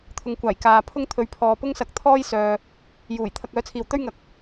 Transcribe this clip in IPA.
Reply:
t̪ʰʊ˨ŋkʷaː˨˩j kaː˨ pʰʊ˥ŋt̪ʰɵ˨ɥpʰɔː˨ pʊ˥ŋsɐ˨k̚t̪ʰɔː˥j sœː˨ | juː˨˩j t̪ʰɐ˧k̚œː˨˥t͡sʰiː˨w t̪ɵ˥ɥŋɐ˨˥k̚

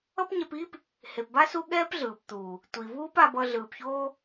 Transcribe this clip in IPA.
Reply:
ʌ˦pɲɛ˧piː˦p | he˨pba˦ su˦ɠɛː˦pɮɯː˨pt̪uː˨ | tʷi˨vuː˦p a˧bʌ˧ ɮɯː˨pçoː˦

